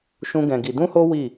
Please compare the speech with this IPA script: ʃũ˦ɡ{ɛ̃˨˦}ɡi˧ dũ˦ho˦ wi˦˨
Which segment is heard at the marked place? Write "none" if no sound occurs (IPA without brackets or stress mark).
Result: ɛ̃˧